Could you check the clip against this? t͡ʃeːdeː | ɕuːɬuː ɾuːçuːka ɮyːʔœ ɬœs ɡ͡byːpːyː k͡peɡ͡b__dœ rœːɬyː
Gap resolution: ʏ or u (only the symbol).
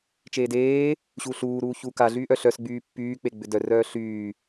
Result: ʏ